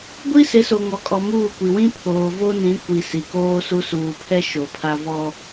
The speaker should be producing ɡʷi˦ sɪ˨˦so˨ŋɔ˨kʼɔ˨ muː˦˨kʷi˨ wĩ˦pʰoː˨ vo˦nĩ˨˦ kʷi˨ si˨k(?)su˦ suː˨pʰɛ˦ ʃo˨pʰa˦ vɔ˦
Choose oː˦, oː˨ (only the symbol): oː˦